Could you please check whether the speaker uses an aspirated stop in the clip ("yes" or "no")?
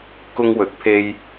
yes